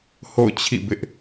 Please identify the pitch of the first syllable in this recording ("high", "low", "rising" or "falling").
falling